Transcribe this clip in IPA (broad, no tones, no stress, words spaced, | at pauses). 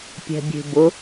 pʲɛ̤bʲe̤bʊ